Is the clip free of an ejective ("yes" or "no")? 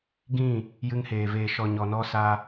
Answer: yes